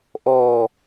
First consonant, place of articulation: glottal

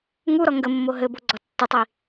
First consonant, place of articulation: velar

